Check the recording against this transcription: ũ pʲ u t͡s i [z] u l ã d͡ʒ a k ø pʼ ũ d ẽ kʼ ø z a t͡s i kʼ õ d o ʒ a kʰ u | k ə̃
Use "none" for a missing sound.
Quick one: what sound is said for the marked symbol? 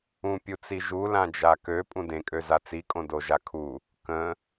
ʒ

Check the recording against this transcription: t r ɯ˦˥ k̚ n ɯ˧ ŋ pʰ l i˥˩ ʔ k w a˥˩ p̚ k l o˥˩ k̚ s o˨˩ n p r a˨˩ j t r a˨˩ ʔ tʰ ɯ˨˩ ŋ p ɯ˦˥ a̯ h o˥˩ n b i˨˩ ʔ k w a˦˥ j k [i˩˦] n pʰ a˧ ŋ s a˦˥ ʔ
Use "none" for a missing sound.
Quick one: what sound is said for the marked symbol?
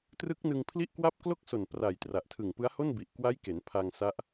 e˩˦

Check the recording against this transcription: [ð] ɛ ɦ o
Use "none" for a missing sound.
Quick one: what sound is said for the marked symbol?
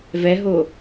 v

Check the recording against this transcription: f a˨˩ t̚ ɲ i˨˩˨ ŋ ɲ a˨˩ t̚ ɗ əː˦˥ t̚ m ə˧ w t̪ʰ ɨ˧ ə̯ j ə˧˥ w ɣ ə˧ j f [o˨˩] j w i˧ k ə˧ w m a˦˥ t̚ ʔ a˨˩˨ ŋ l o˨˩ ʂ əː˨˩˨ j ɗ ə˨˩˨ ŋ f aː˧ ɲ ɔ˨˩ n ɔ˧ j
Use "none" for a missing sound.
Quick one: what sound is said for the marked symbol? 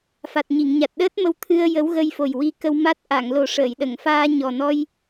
o˨˩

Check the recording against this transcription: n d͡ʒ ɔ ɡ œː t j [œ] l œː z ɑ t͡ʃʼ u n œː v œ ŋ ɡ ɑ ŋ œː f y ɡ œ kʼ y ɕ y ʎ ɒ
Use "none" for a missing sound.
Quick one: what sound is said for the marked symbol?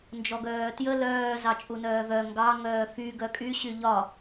ə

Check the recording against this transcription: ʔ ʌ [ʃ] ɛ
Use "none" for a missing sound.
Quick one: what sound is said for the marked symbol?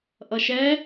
ʃ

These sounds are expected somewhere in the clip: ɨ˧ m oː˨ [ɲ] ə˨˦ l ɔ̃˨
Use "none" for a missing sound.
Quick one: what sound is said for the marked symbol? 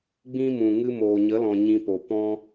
ɲ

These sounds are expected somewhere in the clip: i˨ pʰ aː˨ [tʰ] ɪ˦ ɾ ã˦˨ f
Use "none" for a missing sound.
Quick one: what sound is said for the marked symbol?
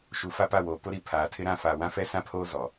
tʰ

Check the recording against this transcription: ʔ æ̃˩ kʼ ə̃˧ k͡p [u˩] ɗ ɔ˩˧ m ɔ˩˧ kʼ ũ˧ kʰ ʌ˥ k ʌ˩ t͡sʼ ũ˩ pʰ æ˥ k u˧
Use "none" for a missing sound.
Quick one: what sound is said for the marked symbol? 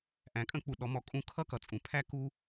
u˩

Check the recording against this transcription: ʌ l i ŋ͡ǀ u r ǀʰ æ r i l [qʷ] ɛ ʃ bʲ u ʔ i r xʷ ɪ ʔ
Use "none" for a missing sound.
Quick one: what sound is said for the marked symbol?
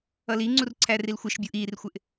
xʷ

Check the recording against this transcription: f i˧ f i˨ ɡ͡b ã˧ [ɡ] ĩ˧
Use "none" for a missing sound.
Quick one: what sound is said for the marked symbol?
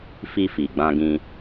ɡ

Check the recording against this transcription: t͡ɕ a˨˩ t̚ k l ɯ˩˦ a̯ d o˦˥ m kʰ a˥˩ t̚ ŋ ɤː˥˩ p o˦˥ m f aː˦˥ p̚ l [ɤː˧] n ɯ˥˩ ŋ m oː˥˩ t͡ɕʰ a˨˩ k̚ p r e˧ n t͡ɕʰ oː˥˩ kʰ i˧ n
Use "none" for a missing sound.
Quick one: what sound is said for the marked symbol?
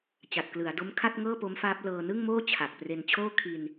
ɤː˧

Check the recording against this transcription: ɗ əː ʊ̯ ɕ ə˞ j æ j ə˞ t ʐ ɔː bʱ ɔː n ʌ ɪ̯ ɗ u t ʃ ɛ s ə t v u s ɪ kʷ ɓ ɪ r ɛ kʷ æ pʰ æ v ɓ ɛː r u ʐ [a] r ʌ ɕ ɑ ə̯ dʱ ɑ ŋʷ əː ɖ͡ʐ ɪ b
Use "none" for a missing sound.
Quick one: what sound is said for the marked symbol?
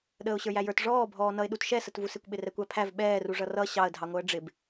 ʌ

